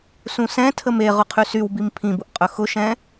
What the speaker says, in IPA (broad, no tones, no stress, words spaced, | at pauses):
sũsɛ̃tʰəm e ʁʊqʰysywbim pʰĩbʊʔqʼɵ xʊʃɛ̃